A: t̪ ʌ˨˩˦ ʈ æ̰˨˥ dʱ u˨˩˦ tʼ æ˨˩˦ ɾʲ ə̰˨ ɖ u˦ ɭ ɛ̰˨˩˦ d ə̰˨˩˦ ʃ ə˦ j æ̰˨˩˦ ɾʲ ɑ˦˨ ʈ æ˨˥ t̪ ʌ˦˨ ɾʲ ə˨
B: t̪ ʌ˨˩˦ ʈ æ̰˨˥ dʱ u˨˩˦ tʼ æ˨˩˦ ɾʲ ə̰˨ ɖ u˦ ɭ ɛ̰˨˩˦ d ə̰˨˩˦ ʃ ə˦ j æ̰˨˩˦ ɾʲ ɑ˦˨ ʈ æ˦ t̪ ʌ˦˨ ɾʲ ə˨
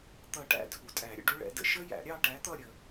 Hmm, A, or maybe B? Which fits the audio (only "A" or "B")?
A